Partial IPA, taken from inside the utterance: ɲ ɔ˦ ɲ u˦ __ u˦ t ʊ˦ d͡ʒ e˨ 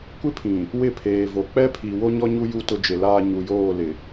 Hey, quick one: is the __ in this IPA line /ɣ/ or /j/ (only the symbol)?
j